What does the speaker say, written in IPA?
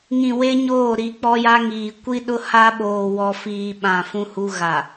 ŋ ĩ˨ w e˦ ɲ oː˦˨ ɾ i˨˦ k͡p ɔ˦ j a˦ ŋ iː˨ kʷ i˦ ɗ ʊ˦ h a˦ ɓ oː˨ w ɔ˨ f iː˨ ɓ ã˨ f ũ˦ h u˦ ɣ a˨

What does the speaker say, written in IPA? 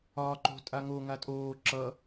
ɒː ǃ o̤ tʼ a ŋ o ŋ a tʼ oː ǁ ʌ

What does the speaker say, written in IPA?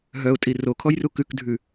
ɦ œ ʊ̯ tʼ i r o kʰ ɔ j r u k ʉ k dʱ ʉ

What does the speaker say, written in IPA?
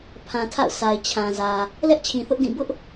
pʰ ã˨ tʰ a̰˦˨ ʊ̯ sʰ a˨ ɪ̯ t͡ɕʰ ã˨ z ä˨ | l ɛ˦ ʔ t͡ɕʰ ĩ˨ θ ʊ˦ ʔ d ĩ˦˨ b ʊ˦ ʔ

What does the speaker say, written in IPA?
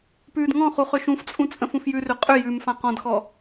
p ʉː d ŋ ɔ̃ χ u χ ʏ ʃ ũ f t͡sʼ ũ t͡sʼ ə̃ f ũ f j ʉ r ʏ qʼ ʏ j ʉ m f ã q ɔ̃ d x ɔ

